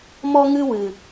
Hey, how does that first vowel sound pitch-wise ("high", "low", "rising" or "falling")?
high